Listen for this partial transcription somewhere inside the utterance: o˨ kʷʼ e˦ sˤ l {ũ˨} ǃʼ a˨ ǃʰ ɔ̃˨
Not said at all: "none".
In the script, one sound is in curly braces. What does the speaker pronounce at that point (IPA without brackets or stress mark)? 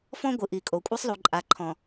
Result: u˨